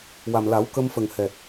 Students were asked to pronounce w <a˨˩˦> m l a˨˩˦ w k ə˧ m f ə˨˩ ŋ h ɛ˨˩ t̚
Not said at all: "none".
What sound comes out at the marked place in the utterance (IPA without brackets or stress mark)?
a˨˩